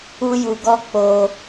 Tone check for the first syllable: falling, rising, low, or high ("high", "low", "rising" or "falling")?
high